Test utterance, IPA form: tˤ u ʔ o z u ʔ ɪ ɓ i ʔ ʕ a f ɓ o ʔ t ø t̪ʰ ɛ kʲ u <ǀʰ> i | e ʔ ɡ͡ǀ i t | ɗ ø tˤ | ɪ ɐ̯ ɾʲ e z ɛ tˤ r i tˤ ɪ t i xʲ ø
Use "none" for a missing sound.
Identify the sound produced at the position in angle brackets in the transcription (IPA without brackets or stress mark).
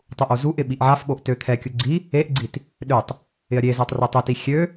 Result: ɡ͡ǀ